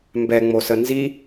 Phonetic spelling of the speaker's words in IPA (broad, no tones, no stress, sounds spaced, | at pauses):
m b ɛ ŋ͡m o s ə n z i